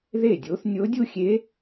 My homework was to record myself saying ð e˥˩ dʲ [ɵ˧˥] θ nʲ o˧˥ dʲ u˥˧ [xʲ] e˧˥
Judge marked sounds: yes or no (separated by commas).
no, yes